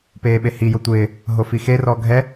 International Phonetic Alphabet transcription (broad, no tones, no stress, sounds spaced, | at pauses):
p eː ɓ e h i j o tʷ ɪː | ɦ o f i x e r ɔ ɡʱ ɛ